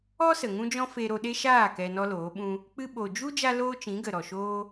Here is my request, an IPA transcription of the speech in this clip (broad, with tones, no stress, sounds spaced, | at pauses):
ɔ˦ s ə˨ ŋ ũ˦ d͡ʒ ɔ̃˦ f e˧ ɾ o˧ ɗ e˦ ʃ aː˦˨ k ɛ˧ n ɔ˦ l oː˨˦ ɓ ũ˦ | k͡p ɨ˧ ɓ o˨ d͡ʒ u˦ d͡ʒ a˦ l oː˦ t͡ʃ ĩ˨˦ ɡ ə˨ ɾ ɔ˨ ʃ oː˦